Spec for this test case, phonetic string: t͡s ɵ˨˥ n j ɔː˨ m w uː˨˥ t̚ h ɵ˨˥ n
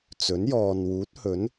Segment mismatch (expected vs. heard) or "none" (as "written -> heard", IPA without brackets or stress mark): m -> n